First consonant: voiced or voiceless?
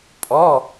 voiceless